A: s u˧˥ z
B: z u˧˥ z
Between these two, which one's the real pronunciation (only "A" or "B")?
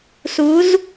A